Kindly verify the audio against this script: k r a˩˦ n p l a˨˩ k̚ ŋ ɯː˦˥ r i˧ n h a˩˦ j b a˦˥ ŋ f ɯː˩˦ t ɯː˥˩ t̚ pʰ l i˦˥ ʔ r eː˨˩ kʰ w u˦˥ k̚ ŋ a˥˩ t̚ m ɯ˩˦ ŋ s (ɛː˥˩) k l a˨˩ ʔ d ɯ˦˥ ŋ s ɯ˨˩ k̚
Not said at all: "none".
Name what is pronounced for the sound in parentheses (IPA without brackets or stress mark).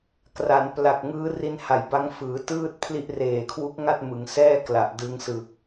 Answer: ɛː˥˩